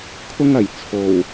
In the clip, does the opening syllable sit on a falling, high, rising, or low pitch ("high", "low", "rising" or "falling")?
high